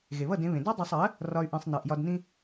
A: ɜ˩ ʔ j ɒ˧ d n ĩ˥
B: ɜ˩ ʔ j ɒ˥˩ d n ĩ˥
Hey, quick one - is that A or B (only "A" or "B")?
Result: A